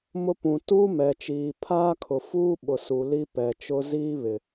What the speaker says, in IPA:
m ʊ˦ p ũ˨ t uː˦ m ɛ˨ t͡ʃ iː˨ pʰ aː˦ kʰ ʊ˨ f uː˦ ɓ ʊ˨ s u˨ l i˦ p ɛ˨ t͡ʃ ʊ˦ z iː˦ β ɪ˨

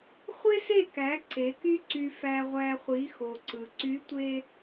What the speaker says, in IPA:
χʷ e˦ s e˦˨ k æ˨˦ ǀ e˨˦ k y˦ ǀ y˨ f æ˨ ʁʷ æ˨ χʷ i˨˦ x o˨ ǀ ɯ˨ ǀ y˨˦ tʷ e˦

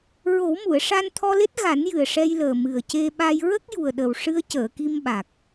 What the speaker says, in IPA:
ɹ o˨˩˦ w m u˨˩˨ ə̯ ʂ a˧ n t̪ʰ ɔ˧ l e˦˥ t̚ ɣ a˨˩˦ n j ɨ˨˩ ə̯ ʂ ɛ˧ j l əː˨˩ m ɨ˨˩ ə̯ c e˧ ɓ a˧ j ɹ ə˦˥ k̚ j u˨˩ ə̯ ɗ ə˨˩ w ʂ ɨ˧ ə̯ c əː˨˩˨ k i˧ m ɓ a˨˩ k̚

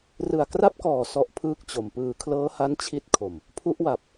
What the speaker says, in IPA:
r ɯ˨˩ a̯ k r a˦˥ p̚ k ɔː˨˩ s ɔ˦˥ ʔ pʰ ɯː˥˩ k̚ t͡ɕ o˨˩ m p ɯː˨˩ kʰ l ɤː˦˥ h a˦˥ n t͡ɕʰ i˦˥ t̚ kʰ o˨˩ m | pʰ u˦˥ ʔ w a˨˩ p̚

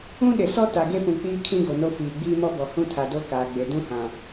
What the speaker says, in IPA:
ũ˦ ɗ ɪ˨ s ɔ˦ t a˨ ɡ e˦ p ũ˨ k͡p iː˦ kʰ ĩ˦ ɡ o˨ n o˦ f iː˨ ɡ͡b iː˦ m ɔ˦ b ɔ˨ h ũ˦ tʰ a˨ d o˦ k aː˨ ɡ͡b e˨ d ũ˦ h ã˨

